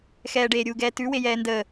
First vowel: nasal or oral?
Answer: oral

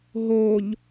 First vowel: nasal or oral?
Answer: oral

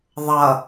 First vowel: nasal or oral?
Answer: oral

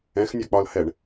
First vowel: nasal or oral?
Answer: nasal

